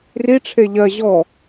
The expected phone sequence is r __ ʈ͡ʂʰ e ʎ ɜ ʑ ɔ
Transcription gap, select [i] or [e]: i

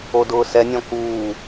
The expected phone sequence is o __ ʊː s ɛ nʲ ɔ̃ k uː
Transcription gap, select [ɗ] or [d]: d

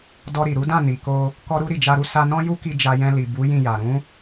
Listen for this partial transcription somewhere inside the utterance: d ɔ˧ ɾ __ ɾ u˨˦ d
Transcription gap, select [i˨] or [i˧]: i˨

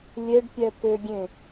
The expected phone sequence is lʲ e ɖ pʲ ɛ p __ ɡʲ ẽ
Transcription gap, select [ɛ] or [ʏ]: ʏ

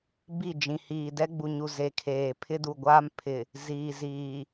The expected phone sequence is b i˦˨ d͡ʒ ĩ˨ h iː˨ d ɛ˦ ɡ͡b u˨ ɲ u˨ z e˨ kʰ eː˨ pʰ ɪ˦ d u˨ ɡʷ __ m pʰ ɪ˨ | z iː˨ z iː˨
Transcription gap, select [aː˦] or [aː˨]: aː˦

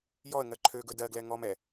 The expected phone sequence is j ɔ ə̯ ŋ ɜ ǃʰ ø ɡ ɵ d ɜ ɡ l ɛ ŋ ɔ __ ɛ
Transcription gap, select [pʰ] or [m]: m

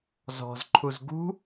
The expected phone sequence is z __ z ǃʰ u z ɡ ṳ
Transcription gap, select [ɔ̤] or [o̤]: ɔ̤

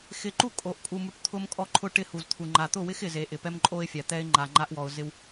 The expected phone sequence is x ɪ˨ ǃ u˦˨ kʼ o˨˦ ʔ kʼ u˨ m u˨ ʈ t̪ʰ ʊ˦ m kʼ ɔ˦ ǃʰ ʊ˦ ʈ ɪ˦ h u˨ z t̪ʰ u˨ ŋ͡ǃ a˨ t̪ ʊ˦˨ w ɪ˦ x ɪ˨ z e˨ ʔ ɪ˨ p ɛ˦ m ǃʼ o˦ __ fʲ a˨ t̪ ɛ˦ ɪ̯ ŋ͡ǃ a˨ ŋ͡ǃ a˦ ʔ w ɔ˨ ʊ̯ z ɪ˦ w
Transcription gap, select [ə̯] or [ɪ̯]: ɪ̯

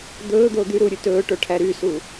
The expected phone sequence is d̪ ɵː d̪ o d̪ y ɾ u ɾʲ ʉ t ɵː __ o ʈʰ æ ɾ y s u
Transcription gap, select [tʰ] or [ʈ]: ʈ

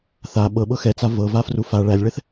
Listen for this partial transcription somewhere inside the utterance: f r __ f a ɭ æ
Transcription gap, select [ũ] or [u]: u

